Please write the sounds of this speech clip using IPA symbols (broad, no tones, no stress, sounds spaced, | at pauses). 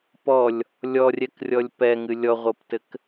p ɔ lʲ | lʲ ɔ rʲ ɛ k rʲ ɔ lʲ p ɛ ŋ ɨ lʲ ɔ ʁʷ ɤ p t ɘ k